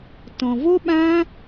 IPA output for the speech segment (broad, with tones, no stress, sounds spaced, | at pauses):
t ɔ̃˨ v o˦ ɓ ã˦